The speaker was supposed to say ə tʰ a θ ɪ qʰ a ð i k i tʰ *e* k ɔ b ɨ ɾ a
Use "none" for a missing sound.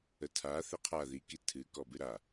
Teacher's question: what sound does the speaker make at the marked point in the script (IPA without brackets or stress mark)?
ɨ